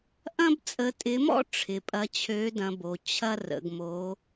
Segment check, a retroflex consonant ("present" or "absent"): present